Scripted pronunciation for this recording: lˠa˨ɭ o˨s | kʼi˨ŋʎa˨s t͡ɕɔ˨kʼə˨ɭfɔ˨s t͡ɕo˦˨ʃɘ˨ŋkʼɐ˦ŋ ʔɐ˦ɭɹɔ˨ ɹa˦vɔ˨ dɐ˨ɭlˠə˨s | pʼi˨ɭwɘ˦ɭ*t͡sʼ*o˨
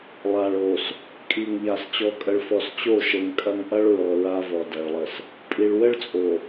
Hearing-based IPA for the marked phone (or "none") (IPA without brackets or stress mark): t͡sʼ